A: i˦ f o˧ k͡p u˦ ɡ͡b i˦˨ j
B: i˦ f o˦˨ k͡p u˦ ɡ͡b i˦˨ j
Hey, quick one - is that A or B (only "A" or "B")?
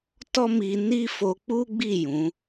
A